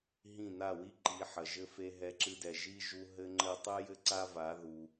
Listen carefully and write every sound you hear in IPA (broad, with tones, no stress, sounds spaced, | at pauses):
ɦ ĩ˦˨ n a˦˨ w i˦ ǃ i˨˦ ħ ɐ˨ ʒ ɘ˦ f e˧ ɦ ɛ˧ ǁ ɨ˧ d ɛ˨ ʒ i˦ ʒ u˧ ɦ ɘ˦ ŋ͡ǃ ɘ˦ tˤ ɨ˦ j ɘ˦ ǀ a˦ v a˨˦ ð u˧